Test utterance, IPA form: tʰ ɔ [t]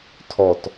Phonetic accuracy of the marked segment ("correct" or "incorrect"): correct